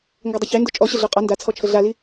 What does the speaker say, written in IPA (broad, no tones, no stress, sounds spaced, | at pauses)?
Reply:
ŋ ɡ ʌ dˤ ə ç e n d o t͡ʃʼ ɔ ɕ ə ɮ o qʼ ɒ n d a t͡sʰ ɔ t͡ʃʰ ə ɮ a l i